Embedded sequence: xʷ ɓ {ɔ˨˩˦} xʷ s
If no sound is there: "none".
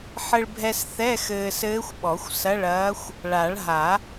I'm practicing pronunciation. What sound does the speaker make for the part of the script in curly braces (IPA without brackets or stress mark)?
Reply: ɔ˨˩˦